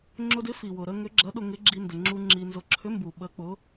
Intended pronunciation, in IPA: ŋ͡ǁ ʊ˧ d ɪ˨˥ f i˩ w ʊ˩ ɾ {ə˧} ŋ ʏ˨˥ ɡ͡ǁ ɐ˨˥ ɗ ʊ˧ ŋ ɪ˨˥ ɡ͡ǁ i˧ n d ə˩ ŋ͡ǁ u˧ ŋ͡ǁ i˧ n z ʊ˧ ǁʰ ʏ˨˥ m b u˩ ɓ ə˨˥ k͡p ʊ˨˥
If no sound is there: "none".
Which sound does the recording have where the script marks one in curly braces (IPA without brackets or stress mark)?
ə˧